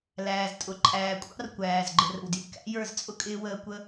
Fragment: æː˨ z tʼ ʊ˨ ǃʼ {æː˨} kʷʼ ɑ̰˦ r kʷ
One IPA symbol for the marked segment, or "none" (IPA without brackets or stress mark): æː˨